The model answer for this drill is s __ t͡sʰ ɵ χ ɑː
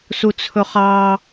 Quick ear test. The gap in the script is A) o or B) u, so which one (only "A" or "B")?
B